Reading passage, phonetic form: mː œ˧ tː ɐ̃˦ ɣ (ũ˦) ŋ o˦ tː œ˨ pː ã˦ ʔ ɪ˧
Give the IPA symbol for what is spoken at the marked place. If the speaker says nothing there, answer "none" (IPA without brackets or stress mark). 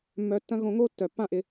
õ˦